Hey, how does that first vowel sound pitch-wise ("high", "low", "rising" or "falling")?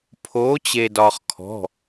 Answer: rising